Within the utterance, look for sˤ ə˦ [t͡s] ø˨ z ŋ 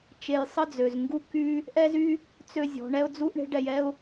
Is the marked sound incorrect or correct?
incorrect